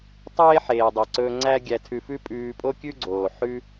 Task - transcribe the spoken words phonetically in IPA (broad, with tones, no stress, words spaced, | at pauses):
tˤeː˥ħeː˩dˤe˩ǀɵː˧ ŋ͡ǀæ˥ ɡʲæ˧tʰʉ˧fʉ˥ pʼʉː˧pʼo˥kʲʉ˥ɡ͡ǀoː˩ ħʉ˥